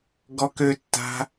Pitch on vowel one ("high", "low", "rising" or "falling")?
high